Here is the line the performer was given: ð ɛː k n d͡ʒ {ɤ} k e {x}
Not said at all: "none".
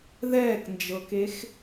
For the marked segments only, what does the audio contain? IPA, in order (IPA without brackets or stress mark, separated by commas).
ɤ, x